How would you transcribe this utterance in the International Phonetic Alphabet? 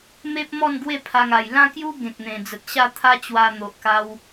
m e˦ p̚ m ɔ˥˧ n ɡ w e˥˧ pʰ a˧ ŋ a˨˩ j l ã˥˧ k j u˦ ɡ ẽ˨ k̚ n̪ ẽ˨˩ d͡z ə˨ t̚ ɕ a˥˧ t̪ʰ a˦ t͡ɕ w a˧ n̪ o˨ ʔ k a˧ w

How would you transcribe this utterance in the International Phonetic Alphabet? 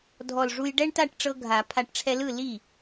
dʱ ɔ˧˩ l ʐ u˧ j ɖ ɛ˥˧ ɳ t a˥˩ ʈ ʈ͡ʂ ɤ˧ ɡʱ a˨˩˦ pʰ a˧˩ ʈ ʈ͡ʂʰ ɛ˧ l ɯ˥˩ l i˥˩

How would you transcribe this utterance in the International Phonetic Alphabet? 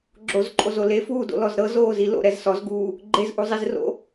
ɡ͡ǁ o z ǃʼ o z o l e f uː d o̰ l ɔ z ɾ ɤ z oː z i l o̰ ɾ ɛ z s ɔ z ɡ uː | ɡ͡ǃ e z ʔ u zˤ i z r o̰

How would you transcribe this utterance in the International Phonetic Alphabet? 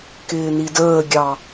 k ɪː n i d əː ɡʲ ɑ

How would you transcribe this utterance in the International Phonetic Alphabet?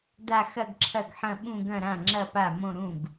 d a˥˧ x ɐ˥˧ ɡ ǁʰ ɐ˥˩ ɡ ħ ɐ̃˥˧ ɓ ũ˥˧ ɡ ɐ̃˥˧ ɾ ã˥˩ ŋ͡ǁ ɐ˥˧ p a˥˩ m õ˥˧ ɾ ũ˥˩ ɡ

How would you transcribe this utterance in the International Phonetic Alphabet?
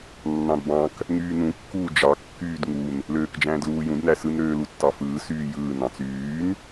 nː ɑ̃ d b ɑ̃ k | ŋ yː n ũ kː uː d͡ʒ ɑ kː yː d ŋ u n | l øː k d͡ʒ æ̃ː d l uː j ũ d n æ s ɯ n ɾ øː l u tː ɑ f ɯː s yː j ɯː n ɑ̃ t͡s yː n

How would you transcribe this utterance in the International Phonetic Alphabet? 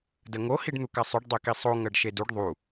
d ə ŋ o h i ɖ n̪ u k a sˤ ʉ ɖ dˤ e k i sˤ o ŋ ɜ ɖ ʃ e d u ɖ ðˤ u

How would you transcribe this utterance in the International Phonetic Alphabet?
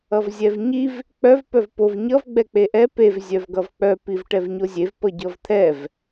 ʌ v zʲ ɛ v ɲ i v | k͡p œ v p œ v p o v ɲ ʌ v ɡ͡b ɛ k͡p e ʔ ɛ p e v zʲ œ v ɡ ʌ v k͡p œ p i v ʈ ɛ v ɲ o zʲ e v p ʌ ɟ ʌ v t̪ʰ ɛ v

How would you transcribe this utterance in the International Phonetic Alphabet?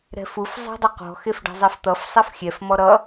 ɾ ɛ̤ f u f zˤ ɛ̤ dˤ ʌ q ɔ̤ x e f ɖ ɛ̤ zˤ ɛ f t̪ ʌ f sˤ ɛ f xʲ ɛ f m ɔ ɾ ʌ

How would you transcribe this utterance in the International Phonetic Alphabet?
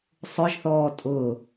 sˤ ʊ ʒ θ ɔː tʼ ʊ

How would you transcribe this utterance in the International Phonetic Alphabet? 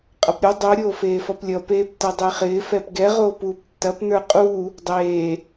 qʼ ʌ p ɾʲ o dˤ o ɾʲ oː f eː f ʌ p lʲ ʌ p eː p t ʌ dˤ e χ ɪː f ɛ p ɡ ɛ ʁ oː p uː p tː ɐ p n ə˞ qʼ uː | dˤ eː

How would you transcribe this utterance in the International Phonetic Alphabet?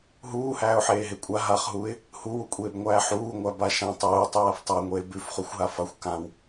ɦ uː h æː ʊ̯ ħ eː ɦ e kʷʼ a ɦ a χ ɦ uː ɪ̯ | h u w u kʷʼ eː b ŋʷ æː ħ uː ŋʷ æ b a ʃ ã tˤ uː tˤ ʉ w a f tˤ a ŋʷ eː b ʉ f χ u xʷ ɦ a f a xʷ k ã w

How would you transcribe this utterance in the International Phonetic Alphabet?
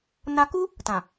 n a˧ k u˦ | t ã˨

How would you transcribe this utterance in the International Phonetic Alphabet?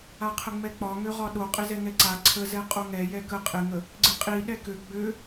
a qʰ ə ŋ͡m ɛ k͡p ɒ ŋ ø ʁ ɒ ɗ o qʼ ɪ z ɛ ŋ ɛ ǀ a ǀʰ ə z ɛ qʼ o ŋ ɛ j ɛ k ə qʼ ɪ ŋ ə | ɡ͡ǀ ɪ qʼ i ɗ ɛ k ø ɡ͡b ø

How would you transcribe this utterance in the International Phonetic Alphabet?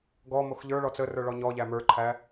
ɡ ɔ m o x ʎ ə˞ ɭ ɔ t͡s ə r ə˞ ɭ ɔ ɲ ɔ ʎ æ m ə˞ ǃʰ æ

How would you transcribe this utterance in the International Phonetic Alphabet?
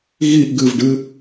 ɣ i ʔ ɡ ɨ v ɖ ɨ

